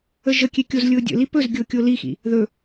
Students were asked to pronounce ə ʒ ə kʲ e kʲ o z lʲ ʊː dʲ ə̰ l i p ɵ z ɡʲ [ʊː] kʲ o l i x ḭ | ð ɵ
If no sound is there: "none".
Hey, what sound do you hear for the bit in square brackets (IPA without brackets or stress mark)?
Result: ʊː